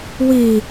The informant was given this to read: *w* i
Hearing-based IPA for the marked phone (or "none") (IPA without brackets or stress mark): w